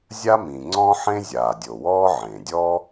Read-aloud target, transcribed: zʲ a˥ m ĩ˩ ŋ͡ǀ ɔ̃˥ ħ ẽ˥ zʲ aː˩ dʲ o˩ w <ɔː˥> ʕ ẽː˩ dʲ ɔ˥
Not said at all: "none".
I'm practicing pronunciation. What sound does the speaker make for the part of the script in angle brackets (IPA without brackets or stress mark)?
ɔː˥